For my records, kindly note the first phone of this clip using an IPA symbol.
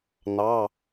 n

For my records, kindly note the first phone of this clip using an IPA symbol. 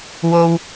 w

